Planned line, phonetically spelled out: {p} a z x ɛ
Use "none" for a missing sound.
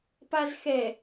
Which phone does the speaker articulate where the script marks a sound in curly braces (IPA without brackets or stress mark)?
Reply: p